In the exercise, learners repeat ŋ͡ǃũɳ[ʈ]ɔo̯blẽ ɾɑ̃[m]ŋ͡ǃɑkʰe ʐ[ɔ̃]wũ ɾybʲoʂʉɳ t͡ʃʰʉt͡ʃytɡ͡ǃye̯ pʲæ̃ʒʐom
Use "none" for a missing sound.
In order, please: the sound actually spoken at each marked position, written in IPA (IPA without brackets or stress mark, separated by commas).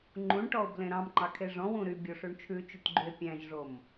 ʈ, m, ɔ̃